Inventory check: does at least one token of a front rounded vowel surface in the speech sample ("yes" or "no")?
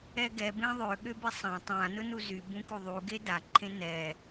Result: yes